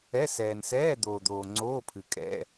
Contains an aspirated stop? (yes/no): yes